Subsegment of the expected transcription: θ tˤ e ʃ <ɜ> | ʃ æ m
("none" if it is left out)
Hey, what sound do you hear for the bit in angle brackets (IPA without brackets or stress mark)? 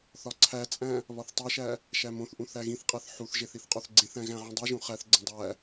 æ